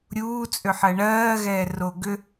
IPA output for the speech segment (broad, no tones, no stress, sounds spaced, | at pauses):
ɾʲ uː t͡sʼ ʏ ħ ɜ ɳ ɜː ɣ ɛː r o ɡ ʏ